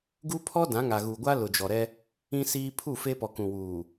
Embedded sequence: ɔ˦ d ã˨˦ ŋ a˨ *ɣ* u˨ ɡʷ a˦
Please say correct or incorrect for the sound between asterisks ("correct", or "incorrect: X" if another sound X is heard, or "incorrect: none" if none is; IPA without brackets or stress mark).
correct